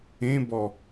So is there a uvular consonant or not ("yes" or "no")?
no